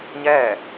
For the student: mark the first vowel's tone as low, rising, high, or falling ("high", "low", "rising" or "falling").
falling